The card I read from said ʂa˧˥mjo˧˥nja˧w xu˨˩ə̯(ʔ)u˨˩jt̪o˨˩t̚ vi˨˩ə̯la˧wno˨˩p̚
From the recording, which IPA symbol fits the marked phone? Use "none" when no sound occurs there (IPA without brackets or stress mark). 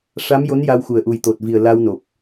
ʔ